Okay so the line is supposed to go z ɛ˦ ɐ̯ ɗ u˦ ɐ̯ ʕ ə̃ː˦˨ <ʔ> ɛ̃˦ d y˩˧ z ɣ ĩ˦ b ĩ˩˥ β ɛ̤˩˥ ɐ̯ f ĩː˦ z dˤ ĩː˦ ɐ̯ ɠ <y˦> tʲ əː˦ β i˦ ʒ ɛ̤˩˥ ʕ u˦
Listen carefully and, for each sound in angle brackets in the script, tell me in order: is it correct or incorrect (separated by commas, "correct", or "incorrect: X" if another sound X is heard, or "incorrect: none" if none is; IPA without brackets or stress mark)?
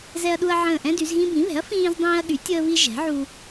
correct, incorrect: y˩˥